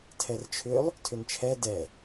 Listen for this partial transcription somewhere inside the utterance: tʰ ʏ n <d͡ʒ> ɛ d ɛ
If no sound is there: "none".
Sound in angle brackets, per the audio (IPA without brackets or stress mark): t͡ʃʰ